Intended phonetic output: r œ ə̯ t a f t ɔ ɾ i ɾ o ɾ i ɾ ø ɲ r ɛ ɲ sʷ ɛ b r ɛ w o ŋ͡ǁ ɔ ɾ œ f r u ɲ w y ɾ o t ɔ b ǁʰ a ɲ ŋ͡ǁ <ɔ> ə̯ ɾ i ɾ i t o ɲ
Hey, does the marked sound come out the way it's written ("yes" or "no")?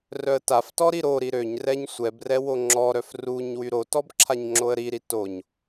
no